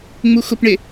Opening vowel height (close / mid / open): close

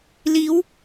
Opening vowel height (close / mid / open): close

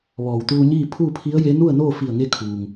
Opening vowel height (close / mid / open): mid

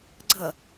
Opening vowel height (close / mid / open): mid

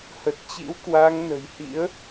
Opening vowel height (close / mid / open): mid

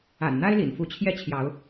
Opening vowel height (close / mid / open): open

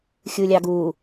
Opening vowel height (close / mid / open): close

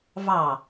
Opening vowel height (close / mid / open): open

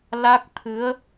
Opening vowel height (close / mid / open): open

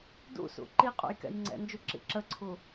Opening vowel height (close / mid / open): close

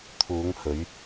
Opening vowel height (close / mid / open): close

